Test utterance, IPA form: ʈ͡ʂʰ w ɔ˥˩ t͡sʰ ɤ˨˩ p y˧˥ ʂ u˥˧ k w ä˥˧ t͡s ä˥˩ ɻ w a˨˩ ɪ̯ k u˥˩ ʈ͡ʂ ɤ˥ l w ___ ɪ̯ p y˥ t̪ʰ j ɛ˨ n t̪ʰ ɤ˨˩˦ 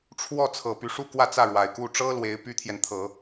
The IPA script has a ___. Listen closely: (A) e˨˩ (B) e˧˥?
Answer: B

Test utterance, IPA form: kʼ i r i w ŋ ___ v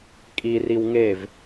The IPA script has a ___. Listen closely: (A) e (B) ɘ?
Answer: A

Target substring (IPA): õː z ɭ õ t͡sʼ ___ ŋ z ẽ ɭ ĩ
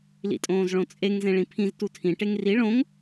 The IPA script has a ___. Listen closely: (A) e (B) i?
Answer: A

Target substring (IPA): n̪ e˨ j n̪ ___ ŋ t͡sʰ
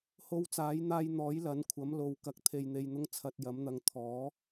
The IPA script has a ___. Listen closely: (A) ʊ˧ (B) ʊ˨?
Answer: A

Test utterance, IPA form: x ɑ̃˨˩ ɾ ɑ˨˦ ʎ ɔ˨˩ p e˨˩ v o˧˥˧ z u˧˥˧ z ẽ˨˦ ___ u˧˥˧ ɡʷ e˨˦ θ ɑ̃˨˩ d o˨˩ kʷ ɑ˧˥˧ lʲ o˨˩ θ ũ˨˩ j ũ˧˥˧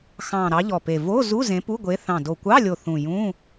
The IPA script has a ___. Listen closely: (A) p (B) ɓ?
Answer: A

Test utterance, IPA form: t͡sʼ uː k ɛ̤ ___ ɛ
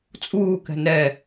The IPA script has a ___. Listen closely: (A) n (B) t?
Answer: A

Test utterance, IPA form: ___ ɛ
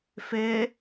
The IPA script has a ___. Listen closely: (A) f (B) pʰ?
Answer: A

